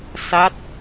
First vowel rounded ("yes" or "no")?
no